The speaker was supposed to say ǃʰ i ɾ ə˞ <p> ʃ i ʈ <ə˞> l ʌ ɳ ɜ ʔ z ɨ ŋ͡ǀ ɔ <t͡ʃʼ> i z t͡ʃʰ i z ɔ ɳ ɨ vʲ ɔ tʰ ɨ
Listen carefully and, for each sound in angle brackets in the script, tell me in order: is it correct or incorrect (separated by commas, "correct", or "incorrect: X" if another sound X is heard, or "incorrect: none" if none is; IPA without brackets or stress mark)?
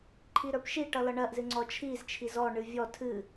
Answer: correct, incorrect: ʌ, incorrect: t͡ʃʰ